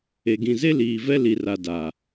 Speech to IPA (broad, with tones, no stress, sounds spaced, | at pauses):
e˨ ɡ ĩ˨ z e˦ l iː˨ v ɛ˦ l i˨ r a˨ d a˨